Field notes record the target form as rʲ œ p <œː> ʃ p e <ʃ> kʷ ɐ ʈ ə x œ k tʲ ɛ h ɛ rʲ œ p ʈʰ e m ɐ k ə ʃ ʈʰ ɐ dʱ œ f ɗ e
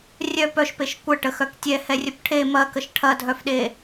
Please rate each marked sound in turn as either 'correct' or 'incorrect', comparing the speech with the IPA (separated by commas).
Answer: incorrect, correct